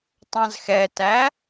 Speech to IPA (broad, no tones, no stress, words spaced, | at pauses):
tˤɑ̃zxɛtæ